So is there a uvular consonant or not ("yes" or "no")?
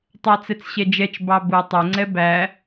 no